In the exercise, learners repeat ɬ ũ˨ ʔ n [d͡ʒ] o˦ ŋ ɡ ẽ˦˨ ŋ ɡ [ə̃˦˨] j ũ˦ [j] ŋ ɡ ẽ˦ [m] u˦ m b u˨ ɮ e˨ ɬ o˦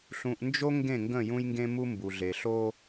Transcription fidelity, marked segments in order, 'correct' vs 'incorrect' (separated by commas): correct, correct, correct, correct